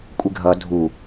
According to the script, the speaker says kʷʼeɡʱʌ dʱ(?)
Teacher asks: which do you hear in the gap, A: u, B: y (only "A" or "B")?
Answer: A